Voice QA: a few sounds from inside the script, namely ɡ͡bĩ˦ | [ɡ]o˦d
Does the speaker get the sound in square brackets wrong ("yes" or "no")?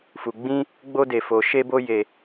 yes